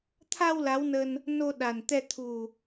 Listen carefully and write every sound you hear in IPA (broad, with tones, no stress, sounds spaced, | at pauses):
t̪ʰ a˧ w l a˨˦ w n ə˧ n | n o˧ ɗ a˨˩ n t̪ ɛ˧ t̪ʰ u˨˩